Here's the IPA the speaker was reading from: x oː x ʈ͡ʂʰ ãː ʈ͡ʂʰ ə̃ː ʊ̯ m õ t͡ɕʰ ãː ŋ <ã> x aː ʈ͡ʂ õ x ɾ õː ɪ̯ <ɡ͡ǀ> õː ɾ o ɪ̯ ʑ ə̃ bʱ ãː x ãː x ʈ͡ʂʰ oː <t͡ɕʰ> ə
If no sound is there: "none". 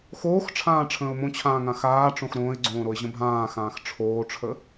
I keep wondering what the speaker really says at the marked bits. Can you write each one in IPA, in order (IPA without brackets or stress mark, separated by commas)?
ã, ɡ͡ǀ, ʈ͡ʂʰ